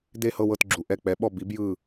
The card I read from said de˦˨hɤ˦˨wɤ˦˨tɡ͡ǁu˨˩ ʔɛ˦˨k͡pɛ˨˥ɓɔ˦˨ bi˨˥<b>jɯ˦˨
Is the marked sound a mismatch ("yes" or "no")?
no